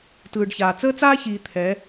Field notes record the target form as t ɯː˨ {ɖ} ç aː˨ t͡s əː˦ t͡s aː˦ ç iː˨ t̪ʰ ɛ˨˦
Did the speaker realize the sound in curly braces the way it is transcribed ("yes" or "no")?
yes